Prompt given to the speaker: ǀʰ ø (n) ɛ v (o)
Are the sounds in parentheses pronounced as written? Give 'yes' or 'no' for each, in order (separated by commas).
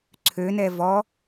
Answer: yes, no